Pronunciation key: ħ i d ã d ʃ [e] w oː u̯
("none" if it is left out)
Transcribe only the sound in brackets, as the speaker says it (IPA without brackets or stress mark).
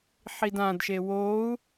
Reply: e